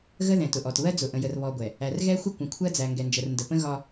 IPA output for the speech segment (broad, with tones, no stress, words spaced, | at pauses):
ɣə˦ðɛ̃˨tʊ˨ʔɔ˨t βɜ˦d͡zʊ˨ ʔə̃˨jə˨r βɔ˨ɡʷɛ˨ | æ˨rɣɛ˦ xʷə˦kʷə̃˨kʷʰɜ˦d͡zæ˨ ŋɡɛ˨nd͡ʒə˨r ndə˨ pə̃˦ɣɒ˦